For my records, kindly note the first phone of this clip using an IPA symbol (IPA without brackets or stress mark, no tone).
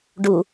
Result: ɖ